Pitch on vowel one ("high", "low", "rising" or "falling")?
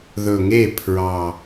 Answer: low